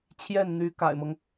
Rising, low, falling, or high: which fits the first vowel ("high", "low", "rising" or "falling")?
falling